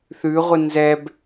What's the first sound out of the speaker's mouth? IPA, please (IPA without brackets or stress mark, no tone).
θ